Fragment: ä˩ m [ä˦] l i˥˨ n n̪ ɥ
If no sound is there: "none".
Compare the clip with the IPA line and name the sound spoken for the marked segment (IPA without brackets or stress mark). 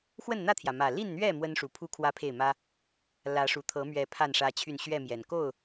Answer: ä˨˩